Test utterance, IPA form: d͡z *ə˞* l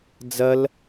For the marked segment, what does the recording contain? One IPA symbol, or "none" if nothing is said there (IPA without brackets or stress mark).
ɐ